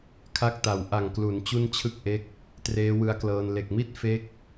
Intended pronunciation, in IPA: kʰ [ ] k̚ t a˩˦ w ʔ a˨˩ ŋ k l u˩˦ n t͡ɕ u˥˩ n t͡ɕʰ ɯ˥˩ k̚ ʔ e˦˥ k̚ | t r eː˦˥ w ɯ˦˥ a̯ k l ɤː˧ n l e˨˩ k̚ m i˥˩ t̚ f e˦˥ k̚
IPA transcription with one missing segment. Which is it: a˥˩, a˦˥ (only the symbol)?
a˦˥